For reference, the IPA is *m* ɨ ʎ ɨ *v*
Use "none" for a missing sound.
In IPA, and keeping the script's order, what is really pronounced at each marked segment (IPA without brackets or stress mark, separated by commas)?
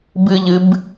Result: b, b